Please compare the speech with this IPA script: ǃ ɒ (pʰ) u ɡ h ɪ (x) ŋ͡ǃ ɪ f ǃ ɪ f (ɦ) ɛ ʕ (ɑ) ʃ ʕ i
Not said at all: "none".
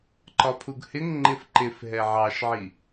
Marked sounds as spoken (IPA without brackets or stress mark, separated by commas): pʰ, ŋ, ɦ, ɑ